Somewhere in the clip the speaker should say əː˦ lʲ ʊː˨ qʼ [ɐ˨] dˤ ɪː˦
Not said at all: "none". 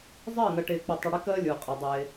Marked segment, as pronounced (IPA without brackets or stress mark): ɐ˨